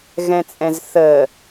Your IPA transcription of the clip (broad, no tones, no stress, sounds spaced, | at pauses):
ɣ ɛ̃ t͡sʼ ɛ̃ z θ ə